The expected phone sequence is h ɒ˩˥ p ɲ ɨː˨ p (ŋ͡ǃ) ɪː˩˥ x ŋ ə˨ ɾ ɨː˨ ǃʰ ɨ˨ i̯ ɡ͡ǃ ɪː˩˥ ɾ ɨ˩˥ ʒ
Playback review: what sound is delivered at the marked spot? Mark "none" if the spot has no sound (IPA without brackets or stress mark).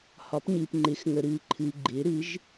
ŋ͡ǃ